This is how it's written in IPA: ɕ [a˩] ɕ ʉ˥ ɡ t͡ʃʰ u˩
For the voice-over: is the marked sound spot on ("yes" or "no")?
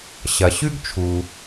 no